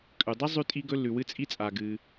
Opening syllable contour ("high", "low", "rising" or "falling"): low